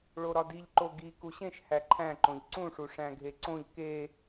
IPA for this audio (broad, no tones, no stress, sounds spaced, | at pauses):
ɭ o ɾ ɒ d i ʎ ǃ o ɡ i k u ɕ ẽ ʃ h æ ǃʰ æ̃ ǃ õ ʎ ǀ ũ ʂ u ʂ æ̃ ɡʱ e ǀ õ ʎ k e